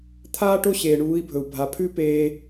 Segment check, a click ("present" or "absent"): absent